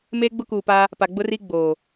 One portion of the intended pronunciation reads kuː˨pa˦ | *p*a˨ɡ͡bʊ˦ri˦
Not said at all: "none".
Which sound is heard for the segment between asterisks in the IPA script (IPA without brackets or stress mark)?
p